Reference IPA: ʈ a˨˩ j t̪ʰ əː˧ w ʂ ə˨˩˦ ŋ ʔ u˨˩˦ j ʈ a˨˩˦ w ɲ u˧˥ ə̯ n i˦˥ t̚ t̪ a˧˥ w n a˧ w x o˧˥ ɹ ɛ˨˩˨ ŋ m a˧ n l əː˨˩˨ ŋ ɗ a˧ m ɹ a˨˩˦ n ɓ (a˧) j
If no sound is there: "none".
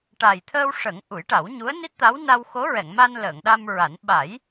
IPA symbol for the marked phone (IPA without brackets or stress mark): a˨˩˦